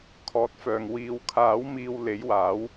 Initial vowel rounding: rounded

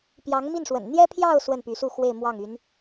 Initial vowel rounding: unrounded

